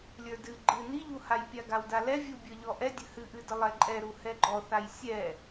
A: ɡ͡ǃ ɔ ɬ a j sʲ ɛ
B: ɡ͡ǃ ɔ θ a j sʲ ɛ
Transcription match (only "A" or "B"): B